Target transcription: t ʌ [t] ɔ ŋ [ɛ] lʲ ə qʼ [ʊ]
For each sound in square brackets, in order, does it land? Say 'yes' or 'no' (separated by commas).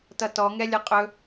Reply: yes, yes, no